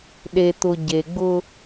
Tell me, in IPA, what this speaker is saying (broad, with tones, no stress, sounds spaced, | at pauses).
ɗ e˨ t̪ ʊ˨ ɟ e˨ ɡ͡b ʊ˦